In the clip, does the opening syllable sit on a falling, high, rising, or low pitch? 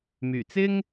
low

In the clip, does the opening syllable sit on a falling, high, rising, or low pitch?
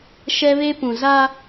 high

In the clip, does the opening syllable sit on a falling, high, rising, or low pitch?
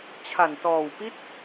low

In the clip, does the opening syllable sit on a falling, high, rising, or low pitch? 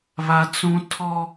high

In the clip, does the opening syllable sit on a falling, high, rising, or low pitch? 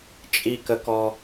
low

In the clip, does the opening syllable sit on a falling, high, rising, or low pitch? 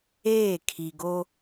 falling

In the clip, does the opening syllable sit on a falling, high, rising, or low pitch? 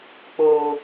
low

